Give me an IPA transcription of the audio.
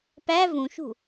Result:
p æ v ũ ʃ ṳ

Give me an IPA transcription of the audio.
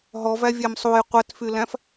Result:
ɦ ɔ v æ vʲ æ m sˤ u j qʷ æ t f y l æ̃ f

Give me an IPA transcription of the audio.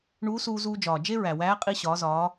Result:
ɳ uː˧˥ s uː˧ z uː˧ d͡ʒ ɒː˩ d͡ʒ e˥ ɹ æ˩ w æː˧˥ qʼ i˧ ɕ ɒː˩˧ z ɒː˩˧

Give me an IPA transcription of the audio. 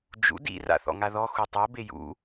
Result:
d͡ʒ ṵ d ḭ r a̰ θ ɔ̰ ŋ a ð ɔ x u tˤ ɤ b e j ṵ

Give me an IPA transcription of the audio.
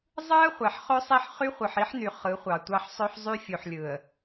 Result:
zˤ ɯ˦ ə̯ χʷ æ˨ ħ χ ø˦ sˤ i˦˨ ħ χ y˦ χʷ ɯ˨ ħ i˦ ħ n y˨ χ ɯ˨˦ χʷ ɑ˨ tʷ ɑ˦ ħ sˤ ø˦ ħ zˤ y˦ fʲ u˨ ħ lʲ ɯ˨ ə̯

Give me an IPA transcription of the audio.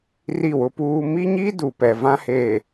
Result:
r i˦˨ w ʊ˦ p uː˦ m i˦ ɲ i˦ d u˨ p ɛ˨ v ã˦ h eː˨

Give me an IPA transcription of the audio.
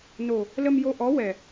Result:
n o˨˩ | l ə˧ m j o˧ ʔ ɔ˧˥ w ɛ˨˩

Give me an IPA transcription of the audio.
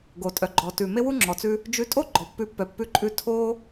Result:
ɡ o˩ tʼ œ˩ ɡ͡ǃ ɔ˩ t ʉ˩ m e˥ w u˥ ŋ͡ǁ ɔ˩ t͡s ʉ˧ | d͡ʒ ʉ˧ tʼ o˥ ɡ͡ǃ ɔ˩ pː ʉ˧ pː œ˩ pː ʉ˧ ǃʼ ʉ˧ tʰ o˥

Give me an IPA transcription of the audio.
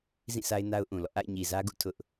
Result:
z ĩ˦˨ sʰ a˦ ɪ̯ n a˦ ʊ̯ ʔ ũ˨ l ɔ̰˦˨ ʔ a̰˦˨ ɪ̯ ɲ i˨ z ä˦ ɡ ṵ˦˨ tʰ ʊ˦ ʔ

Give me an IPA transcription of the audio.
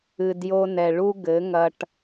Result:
ɨ˨ d j o˧ n ɛ˨ ɭ u˦ ɡ ɘ˨˦ ŋ ɐ˧ ʈ

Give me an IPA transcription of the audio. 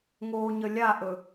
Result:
ŋ oː ɲ ə lʲ a ʔ ɵ

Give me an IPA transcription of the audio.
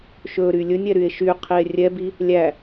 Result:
ʃ ɵ ɾ y lʲ ɵ nʲ ɛ ɾ y e̯ ʃ y qʰ i e̯ rʲ ɛ b i | lʲ æ

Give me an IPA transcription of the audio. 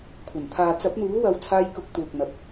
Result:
kʷʰ ɐ˨˩ n t̪ʰ aː˨ t͡s ɐ˨˥ p̚ n̪ uː˨˥ w ɐ˨˧ w t͡sʰ aː˧ j k ʊ˨˥ k̚ t̪ uː˨ k̚ n̪ ɐ˨ p̚

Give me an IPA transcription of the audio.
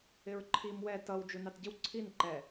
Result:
ɪ ɹ ǃʰ i m w ɛ t ʌ w d͡ʒ u n ɑ t ɟ ɪ w ǀʰ i n ǃ ɛ

